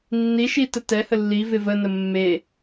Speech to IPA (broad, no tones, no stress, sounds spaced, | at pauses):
nː i ʃ i t ə t ɛ h ə lː i v ɪ v ə n ə mː e